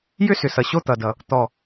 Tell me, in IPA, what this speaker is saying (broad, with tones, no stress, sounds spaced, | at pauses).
j ʏ˥˧ s ʏ˨˩ s ʌ˨˩ ɕ o˥˧ t̪ ʌ˨˩ d ʌ˨˩ | t̪ ɔ˨˩